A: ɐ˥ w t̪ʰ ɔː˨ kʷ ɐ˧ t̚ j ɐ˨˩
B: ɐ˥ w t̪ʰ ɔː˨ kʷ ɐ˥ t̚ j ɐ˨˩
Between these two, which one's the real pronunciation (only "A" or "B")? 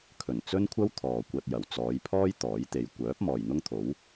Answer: A